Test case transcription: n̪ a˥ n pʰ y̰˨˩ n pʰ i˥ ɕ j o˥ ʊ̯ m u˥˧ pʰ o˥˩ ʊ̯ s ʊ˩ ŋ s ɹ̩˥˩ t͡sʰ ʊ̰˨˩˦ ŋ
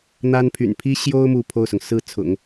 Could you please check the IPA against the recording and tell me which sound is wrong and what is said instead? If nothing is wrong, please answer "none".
none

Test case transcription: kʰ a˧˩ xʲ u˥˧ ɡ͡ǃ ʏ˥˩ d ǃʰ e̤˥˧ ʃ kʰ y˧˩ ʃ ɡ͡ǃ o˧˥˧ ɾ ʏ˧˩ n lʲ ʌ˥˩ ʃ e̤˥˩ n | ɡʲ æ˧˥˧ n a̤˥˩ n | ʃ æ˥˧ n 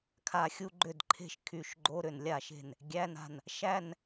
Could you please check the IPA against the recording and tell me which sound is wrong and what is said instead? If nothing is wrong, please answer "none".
ʌ˥˩ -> a˥˩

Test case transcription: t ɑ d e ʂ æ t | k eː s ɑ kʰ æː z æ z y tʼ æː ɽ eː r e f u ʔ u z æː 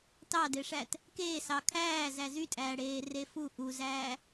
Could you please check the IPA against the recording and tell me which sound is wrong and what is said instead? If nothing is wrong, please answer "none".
none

